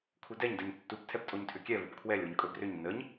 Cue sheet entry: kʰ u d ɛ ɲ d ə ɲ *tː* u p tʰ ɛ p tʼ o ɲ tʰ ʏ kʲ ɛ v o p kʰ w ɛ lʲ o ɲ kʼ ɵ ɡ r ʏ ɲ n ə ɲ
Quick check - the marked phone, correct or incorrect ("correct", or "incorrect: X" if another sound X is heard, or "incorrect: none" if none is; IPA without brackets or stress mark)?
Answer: correct